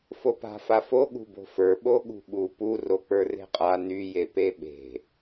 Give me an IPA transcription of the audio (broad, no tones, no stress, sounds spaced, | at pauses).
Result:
f o p a̤ f a f o ɠ ṳ b o̤ f ə˞ ɓ o ɠ ṳ ɓ u p u r o k͡p ə˞ r e̤ qʼ a n y j e p e ɓ e̤